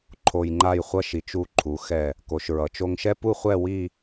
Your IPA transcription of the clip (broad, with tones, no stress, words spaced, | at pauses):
ǃʰo˧jŋ͡ǃa˥˧jχʷʌ˥ʃi˩˧t͡ʃ u˧˩ǃʰu˩˧ xɛ˧˩ | ko˩˧ʃɹʌ˩˧t͡ʃo˧ŋʃɛ˥ pu˥˧χʷɛ˥˧ wi˥˧